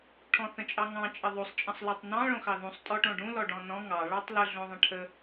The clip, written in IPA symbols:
ʈʰɔ̃θə̃t͡ʃʼɑŋɑ̃ t͡ʃʼəðˤosˤ t͡ʃʼə̃sˤlɔtˤnɑ̃ ɭõxɑðũsˤ tʼɔʈõɖũ lɔɖɔ̃nɔ̃ ŋɑ ɭɑtˤlə ɮõðˤə̃ʈʰə

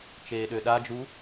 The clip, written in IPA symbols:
t͡ʃeːɗøɗad͡ʒu

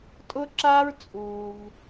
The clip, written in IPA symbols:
tʼʊ˥ǁaː˥ɹt͡sʼuː˩v

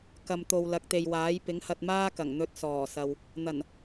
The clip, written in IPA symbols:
kɐ˨mt̪o˨w lɐ˨˥k̚t̪e˨jwaː˨˥j pɪ˨˥ŋhɐ˧t̚maː˥kɐ˨˩ŋ n̪ɵ˧t̚sɔː˨˩sɐ˨w | n̪ɐ˨˩n

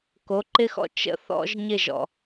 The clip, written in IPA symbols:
ko˨˦ǃɪ˦xɔ̰˦ t͡ʃə̰˦θɔ̰˦ʒ ɲɪ˦˨ʒɔ̰˨

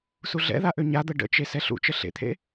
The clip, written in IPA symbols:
suɮɛ̰ða ʔøɲad̪ə ɖə̰t͡ʃe sɛɬṵt͡ʃə ɬḛt̪ʰḛ

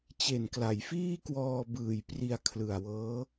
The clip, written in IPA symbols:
t͡ɕe˨˩nkla˩˦jfiː˥˩ kwɔː˧bɯː˨˩j pri˧a̯kʰlɯ˨˩a̯wɤː˦˥

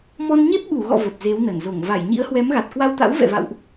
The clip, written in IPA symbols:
mɔ˧nɲe˦˥p̚ ɓu˧˩ɣɔ̰˧˨ və˨˩p̚ze˨˦wnə˧˩nzo˧˩ŋ va˧˩jɲḭ˧˥ə̯hwɛ˨˦mɣa˨˩t̚ kwa˧wt̪a̰˧˥w vɛ̰˧˨va̰˧˨wʔ

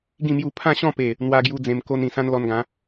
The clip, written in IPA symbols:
ɡĩ˥˧mju˥˧ pʰã˥˧ɕɔ̃˥˧pe˨˩ | n̪wa˧ɡju˧ d͡zẽ˧mko˦nĩ˨˩ sã˦nlɔ˧nɡã˨˦

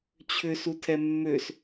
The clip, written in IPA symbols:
t͡ɕʰʏsutʰɛ mːøs

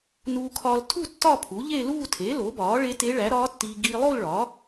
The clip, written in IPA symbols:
nuː˧kʰɒː˧l tʰu˥˧ tːɒ˥˧pʰu˩˥ʎe˥˧ luː˥˧tʰe˩˥ lo˩˥bɒː˩˥ ɭe˧˥te˧˥ ɭæ˩˥ɾɒː˧˥tːiː˧ ɡiː˧lˠo˥˧l ɭɒ˩˥

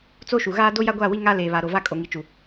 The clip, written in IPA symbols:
t͡so˦ ʃu˨ɣaː˦ do˦ja˦ɡʷaː˦˨wi˦ ŋa˦ leː˨βa˨ɾo˨ va˦ kʼo˨ŋi˨t͡ʃu˨

